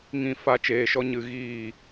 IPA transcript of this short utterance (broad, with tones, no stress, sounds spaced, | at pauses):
ŋ ĩ˦˨ f a˦ t͡ʃ eː˧ ʃ ɔ˦ ɲ ɨ˧ ɣ iː˦˨